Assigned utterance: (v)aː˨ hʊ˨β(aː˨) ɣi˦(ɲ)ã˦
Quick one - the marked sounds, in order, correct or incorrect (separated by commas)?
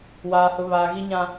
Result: incorrect, correct, correct